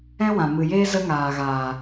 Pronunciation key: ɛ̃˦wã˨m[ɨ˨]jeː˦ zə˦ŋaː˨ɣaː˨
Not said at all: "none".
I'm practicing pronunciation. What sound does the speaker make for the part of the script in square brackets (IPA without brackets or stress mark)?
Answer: ɨ˨